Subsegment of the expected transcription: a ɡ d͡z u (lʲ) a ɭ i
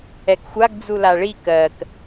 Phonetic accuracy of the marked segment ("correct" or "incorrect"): incorrect